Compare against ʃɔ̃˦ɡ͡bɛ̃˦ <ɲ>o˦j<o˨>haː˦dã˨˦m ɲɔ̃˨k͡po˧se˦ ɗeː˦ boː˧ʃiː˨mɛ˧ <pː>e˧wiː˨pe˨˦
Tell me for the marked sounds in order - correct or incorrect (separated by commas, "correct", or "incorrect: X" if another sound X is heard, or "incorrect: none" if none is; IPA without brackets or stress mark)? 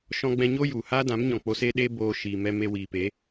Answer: correct, incorrect: u˨, incorrect: m